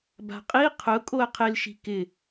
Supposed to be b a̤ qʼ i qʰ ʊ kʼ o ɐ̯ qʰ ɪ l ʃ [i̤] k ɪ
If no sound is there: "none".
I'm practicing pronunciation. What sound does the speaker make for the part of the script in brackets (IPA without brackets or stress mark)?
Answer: i̤